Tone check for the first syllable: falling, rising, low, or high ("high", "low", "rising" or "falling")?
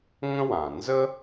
high